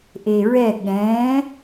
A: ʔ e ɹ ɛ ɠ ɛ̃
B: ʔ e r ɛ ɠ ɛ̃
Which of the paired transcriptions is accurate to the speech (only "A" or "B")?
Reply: A